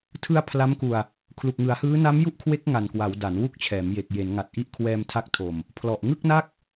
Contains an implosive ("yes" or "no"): no